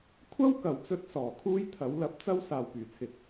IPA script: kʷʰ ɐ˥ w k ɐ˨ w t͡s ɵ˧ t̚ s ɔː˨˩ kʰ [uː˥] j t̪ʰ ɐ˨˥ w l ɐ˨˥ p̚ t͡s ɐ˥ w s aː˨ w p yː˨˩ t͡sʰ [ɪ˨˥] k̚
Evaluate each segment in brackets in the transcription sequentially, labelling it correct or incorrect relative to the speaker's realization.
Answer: correct, correct

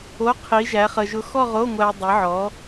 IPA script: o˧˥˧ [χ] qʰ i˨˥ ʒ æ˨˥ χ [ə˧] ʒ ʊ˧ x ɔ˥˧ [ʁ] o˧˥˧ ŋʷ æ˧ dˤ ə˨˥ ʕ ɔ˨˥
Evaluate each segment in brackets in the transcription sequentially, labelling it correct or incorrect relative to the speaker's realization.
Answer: incorrect, correct, correct

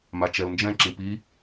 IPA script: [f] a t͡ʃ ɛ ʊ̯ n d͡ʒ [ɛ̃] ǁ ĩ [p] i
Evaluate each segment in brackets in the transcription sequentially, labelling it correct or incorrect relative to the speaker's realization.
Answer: incorrect, correct, correct

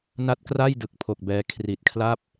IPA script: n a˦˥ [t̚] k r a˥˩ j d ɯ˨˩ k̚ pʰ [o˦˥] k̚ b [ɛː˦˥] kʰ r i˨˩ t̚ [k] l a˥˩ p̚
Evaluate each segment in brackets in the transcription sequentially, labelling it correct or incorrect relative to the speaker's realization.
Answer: correct, incorrect, incorrect, incorrect

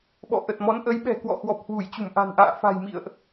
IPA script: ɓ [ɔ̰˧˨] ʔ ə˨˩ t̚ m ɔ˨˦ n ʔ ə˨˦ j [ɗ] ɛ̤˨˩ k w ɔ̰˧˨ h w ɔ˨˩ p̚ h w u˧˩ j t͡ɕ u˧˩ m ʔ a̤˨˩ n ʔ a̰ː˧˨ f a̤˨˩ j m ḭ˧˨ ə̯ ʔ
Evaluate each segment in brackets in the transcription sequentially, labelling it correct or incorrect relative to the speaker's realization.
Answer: correct, incorrect

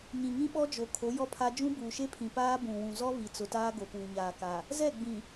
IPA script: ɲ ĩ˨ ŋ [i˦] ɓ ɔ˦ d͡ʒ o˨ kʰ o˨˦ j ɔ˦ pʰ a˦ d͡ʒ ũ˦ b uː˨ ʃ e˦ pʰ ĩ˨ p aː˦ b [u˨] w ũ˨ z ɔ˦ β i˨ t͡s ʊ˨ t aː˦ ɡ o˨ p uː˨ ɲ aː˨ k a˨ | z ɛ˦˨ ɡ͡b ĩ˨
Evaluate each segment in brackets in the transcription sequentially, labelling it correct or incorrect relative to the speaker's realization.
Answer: incorrect, incorrect

